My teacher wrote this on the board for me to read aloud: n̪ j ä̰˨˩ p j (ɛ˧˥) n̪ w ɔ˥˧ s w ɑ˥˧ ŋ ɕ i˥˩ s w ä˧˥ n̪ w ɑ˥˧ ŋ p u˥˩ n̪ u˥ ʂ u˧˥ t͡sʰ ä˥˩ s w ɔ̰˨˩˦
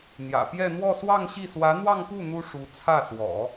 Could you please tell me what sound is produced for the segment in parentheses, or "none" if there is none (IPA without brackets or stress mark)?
ɛ˥˧